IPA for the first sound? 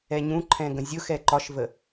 ɛ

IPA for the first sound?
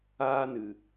aː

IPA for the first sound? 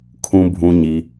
kʰ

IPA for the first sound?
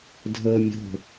dʱ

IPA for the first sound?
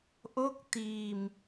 ʔ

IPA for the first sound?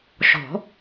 ʃ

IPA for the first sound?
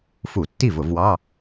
f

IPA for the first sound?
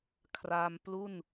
kʰ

